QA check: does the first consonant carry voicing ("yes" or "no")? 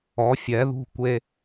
no